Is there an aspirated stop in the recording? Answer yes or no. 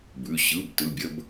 no